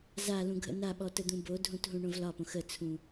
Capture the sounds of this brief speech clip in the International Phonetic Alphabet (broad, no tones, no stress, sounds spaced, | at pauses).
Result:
z a l ũ ɡʱ ə̰ n a ɓ ɔ t ə d̪ ũ b o dʱ ũ t ɦ ũ ɳ õ v l ɒ p õ x ə t͡sʰ ũ